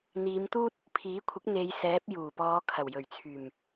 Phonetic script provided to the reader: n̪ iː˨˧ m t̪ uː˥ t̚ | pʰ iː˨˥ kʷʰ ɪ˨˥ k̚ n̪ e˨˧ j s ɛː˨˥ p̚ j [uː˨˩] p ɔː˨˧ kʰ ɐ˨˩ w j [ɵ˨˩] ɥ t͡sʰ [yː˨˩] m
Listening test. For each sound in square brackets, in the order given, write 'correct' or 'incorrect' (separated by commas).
correct, correct, correct